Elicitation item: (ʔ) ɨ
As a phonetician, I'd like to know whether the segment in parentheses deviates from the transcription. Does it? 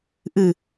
no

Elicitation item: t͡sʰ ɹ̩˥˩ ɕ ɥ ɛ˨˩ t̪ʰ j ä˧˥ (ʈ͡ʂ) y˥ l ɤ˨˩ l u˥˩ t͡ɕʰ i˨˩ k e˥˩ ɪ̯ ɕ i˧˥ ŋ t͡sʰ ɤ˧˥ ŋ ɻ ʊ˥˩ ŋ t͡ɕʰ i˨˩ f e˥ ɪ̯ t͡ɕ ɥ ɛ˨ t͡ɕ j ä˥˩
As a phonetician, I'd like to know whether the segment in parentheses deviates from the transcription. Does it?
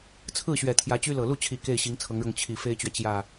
yes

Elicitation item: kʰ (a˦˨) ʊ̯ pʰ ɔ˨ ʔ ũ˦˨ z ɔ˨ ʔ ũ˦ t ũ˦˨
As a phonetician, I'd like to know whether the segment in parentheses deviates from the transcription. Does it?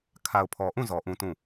yes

